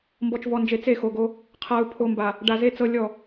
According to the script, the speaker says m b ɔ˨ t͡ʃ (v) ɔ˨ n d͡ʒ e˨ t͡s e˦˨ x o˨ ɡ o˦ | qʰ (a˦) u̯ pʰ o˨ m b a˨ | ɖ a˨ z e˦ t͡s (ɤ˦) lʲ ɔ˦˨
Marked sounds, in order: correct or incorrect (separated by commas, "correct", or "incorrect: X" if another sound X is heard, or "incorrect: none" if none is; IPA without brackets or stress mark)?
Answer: correct, incorrect: a˨, correct